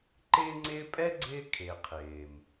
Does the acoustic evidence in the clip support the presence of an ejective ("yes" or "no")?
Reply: yes